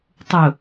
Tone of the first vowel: low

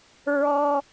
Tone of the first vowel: high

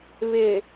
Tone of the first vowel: low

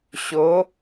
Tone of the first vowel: rising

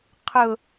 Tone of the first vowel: falling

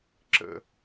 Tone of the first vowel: falling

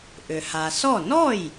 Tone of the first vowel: low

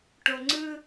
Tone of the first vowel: low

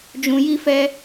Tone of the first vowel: low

